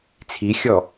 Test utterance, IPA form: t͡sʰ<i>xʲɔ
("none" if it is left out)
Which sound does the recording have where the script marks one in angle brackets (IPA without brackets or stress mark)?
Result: i